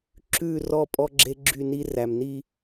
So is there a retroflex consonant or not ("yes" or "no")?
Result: no